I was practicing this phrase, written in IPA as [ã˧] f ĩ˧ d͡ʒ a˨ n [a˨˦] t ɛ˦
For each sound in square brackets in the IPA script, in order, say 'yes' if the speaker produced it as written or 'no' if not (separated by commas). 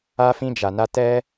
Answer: no, no